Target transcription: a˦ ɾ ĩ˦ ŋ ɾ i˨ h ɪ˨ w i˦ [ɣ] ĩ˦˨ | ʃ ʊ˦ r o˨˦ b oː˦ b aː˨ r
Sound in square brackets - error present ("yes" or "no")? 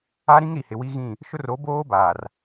no